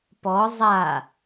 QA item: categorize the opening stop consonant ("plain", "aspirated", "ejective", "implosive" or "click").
plain